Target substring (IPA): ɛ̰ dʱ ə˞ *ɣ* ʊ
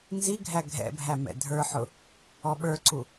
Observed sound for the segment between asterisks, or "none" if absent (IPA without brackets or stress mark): ħ